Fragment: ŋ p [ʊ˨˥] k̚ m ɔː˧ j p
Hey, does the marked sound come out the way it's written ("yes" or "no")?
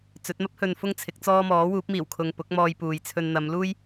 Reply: yes